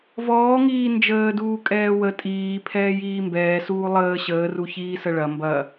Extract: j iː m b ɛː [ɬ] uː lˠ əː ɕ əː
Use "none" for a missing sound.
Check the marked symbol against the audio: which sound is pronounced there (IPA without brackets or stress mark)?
s